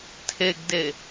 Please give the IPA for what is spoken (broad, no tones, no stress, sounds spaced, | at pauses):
tʰ e ɡ d e